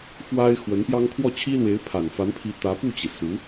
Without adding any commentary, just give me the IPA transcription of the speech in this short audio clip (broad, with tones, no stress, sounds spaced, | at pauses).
f w a˥ ɪ̯ x w ə˧˥ n p j ɑ˥ ŋ kʰ w ɔ˥˩ t͡ɕʰ i˥ l w e˧˥ ɪ̯ pʰ a˨˩ n f a˧˥ n pʰ i˧˥ t̪ ä˧˥ p u˥˩ t͡ɕ i˩ s u˧˥